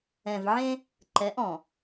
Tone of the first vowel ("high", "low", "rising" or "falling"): low